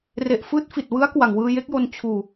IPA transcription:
re˨˩ʔfɯː˦˥t̚ fi˨˩t̚wɯ˦˥a̯kwa˨˩ŋ wɯː˧je˦˥k̚jo˧n t͡ɕʰuː˧

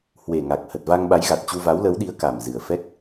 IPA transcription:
hwe˨˩ŋa˨˩k̚ hə˨˩t̚va˧ŋɓa˨˦j ɣa˨˩t̚t͡ɕu˧ va˨˦wlə˨˦wɗi˨˦ə̯ ka˨˩mzɨ˨˩ə̯ fɛ˦˥k̚

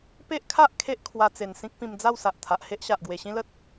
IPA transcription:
pe˦ʔkʰa˦ʔ kʰe˦ʔkʰwa˧t͡se˨˩n sĩ˦k̚pĩ˧md͡za˥˧w sa˨ʔt̪ʰa˨ʔhe˦ʔɕa˨ʔ ɡwe˨˩ɕĩ˦lə˦t̚

